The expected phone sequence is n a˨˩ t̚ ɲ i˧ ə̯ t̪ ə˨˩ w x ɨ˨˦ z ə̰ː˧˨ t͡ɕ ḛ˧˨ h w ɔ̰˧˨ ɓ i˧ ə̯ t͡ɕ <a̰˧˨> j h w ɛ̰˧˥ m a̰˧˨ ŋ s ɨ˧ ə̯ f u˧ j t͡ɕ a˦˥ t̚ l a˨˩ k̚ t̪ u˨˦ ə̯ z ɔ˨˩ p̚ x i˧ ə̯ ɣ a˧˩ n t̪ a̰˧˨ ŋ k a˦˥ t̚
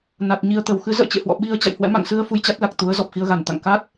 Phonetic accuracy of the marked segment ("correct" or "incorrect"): correct